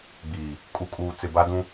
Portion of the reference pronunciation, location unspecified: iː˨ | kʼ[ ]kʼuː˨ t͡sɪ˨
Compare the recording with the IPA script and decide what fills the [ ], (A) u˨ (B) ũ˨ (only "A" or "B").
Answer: A